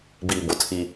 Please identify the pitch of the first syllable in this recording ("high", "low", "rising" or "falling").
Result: low